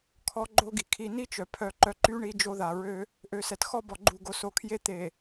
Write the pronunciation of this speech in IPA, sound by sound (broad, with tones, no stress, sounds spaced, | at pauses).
kʰ ɔ˦ ɡ͡ǃ o˦ ɡ i˨ kʰ i˨ n i˦ t͡ʃ œ˨ pʰ œ˨ ǃ œ˨ ǃ y˦ ɳ i˦ d͡ʒ o˦ ð a˨ ɹ ø˦ | ʔ ø˨ s ɛ˨ t x ɔ˦ b ɔ˨ ɡ͡ǃ u˨ ɡ o˨ s o˨ kʰ j e˦ t̪ e˨